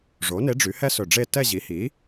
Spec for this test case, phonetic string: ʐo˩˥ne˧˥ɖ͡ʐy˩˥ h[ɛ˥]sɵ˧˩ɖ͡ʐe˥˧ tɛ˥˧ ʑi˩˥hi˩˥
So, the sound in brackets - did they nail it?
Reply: yes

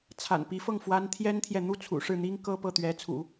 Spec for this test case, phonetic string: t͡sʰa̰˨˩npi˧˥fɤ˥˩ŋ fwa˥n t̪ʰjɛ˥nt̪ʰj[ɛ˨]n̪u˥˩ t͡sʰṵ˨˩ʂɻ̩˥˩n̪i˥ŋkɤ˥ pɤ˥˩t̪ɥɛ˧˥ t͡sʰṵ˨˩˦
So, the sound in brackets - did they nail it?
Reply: yes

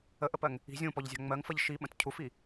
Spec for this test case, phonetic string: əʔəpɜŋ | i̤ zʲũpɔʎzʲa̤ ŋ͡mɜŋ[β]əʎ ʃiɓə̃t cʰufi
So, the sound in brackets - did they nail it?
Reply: no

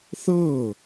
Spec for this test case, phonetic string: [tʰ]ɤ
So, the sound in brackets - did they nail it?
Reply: no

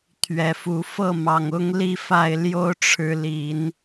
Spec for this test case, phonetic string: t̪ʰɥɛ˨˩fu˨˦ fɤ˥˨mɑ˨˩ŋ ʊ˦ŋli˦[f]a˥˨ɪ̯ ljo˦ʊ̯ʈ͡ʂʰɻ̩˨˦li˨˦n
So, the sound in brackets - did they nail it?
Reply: yes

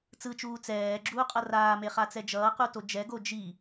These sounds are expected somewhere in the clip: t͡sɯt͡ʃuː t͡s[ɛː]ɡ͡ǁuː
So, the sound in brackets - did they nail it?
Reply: yes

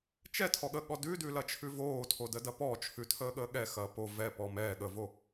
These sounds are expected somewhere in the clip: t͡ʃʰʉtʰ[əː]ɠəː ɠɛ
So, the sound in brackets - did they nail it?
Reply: yes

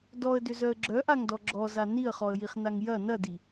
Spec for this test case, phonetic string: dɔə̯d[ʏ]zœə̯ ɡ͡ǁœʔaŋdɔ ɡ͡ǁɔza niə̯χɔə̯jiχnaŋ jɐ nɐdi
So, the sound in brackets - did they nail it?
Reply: yes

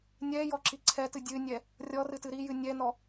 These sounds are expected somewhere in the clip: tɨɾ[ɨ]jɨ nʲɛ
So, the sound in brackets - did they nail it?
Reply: no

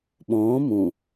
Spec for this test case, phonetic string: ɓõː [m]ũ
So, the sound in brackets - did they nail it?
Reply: yes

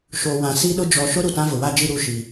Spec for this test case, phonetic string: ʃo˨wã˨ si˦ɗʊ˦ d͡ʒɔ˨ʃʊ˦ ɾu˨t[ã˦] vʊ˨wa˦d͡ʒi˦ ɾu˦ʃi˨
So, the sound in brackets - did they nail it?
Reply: yes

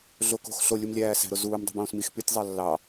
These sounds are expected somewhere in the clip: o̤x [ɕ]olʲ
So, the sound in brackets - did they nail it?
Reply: no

